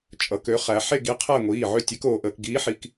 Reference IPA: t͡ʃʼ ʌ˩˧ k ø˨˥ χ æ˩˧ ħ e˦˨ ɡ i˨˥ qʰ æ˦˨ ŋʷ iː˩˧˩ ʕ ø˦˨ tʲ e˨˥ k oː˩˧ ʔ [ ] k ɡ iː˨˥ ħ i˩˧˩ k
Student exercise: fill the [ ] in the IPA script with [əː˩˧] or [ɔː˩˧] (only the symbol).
əː˩˧